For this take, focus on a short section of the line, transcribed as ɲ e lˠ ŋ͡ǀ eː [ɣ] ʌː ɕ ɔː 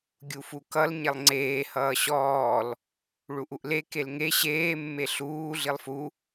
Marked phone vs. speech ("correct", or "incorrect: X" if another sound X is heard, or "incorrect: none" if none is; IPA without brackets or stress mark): incorrect: h